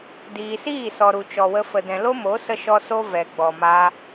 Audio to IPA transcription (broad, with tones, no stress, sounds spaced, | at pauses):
d iː˨ s iː˦˨ s ɔ˨ ɾ u˨ t͡ʃ ɔ˨ w ə˧ f ə˨ d ɛ̃˨ l o˦ m o˨˦ s ə˧ ʃ ɔ˧ s o˦ v ɛ˨ ɡ͡b ɔ˨ m a˧